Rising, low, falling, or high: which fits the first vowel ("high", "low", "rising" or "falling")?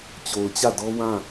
low